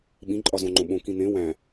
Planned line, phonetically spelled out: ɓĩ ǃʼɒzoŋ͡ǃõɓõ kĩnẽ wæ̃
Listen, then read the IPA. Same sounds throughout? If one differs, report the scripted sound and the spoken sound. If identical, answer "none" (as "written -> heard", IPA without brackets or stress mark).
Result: o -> õ